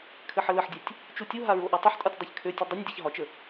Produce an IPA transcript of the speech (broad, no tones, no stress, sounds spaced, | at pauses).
kʰ ɘ ħ ə l ə ħ dʲ ɛ tʲ | t͡ʃ u tʲ u ɦ a ɹ o ʔ a tˤ ɘ ħ tʼ ɒ tʲ dˤ ɛ ç kʰ ø tʲ ɘ dˤ ə nʲ dʲ ɛ ç ɦ ɒ t͡ʃ ə